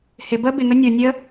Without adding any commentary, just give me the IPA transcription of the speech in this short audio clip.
hɪ bə bɪŋə nʲo nʲə

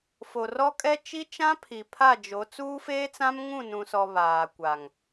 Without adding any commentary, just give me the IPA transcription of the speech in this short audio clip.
fo˨rɔ˦kʼɛ˦ t͡ʃi˦t͡ʃã˦pʰi˨ pʰa˦˨d͡ʒo˨˦ t͡suː˦feː˦t͡sã˦mŋũ˦˨ nũ˨sɔ˨ βaː˨kʷa˨ŋ

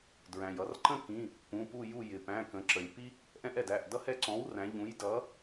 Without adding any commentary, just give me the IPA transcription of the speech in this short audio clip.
dɹæ̃˩jʌ˩˧rǃə̃˥kĩ˩˧˩ | pũ˩˧˩pu˦˨ ju˦˨jɪ˩ pæ̃˩˧˩kə̃˩˧ǁə˩lʲ pi˥ | ʔɛ̃˥ʔɛ˩dæ˩˧˩ʔ dʌ˥hɛ˦˨ǀɔ̃˩˥wræ̃˩˧ ʎũ˩˥jdʌ˩˥

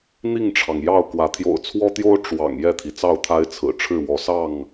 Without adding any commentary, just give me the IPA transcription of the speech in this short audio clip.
n̪i˥˨ŋʈ͡ʂʰɑ˩ŋjɑ˥˨ʊ̯kwä˨˦ t̪ʰjo̰˨˩ʊ̯t͡sʰwɔ˦t̪jo˦ʊ̯ ʈ͡ʂwɑ̰˨˩ŋ jɛ˥˨t̪ʰi˩t͡sɑ˥˨ʊ̯t̪ʰa˦ɪ̯ t͡sʰɹ̩˨˩ʈ͡ʂʰɻ̩˥˨ wɔ˨˦ sɑ˥˨ŋ

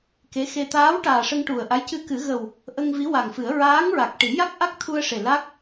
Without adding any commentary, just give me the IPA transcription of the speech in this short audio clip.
ke˧˥ xe˧ t̪aː˧˥w ʈaː˨˩ʂə˧ŋʈu˨˩ə̯ ʔa˧˥j cɨ˧kɨ˨˩˦ɣə˨˩w | ʔə˧ŋ vi˧˥wa˨˩ŋfɨ˨˩˦ə̯ ɹaː˧˥ŋɹa˨˩k̚ ʈi˨˩˦ja˦˥k̚ʔa˦˥k̚t̪ʰu˧ə̯ ʂe˨˩ la˦˥k̚

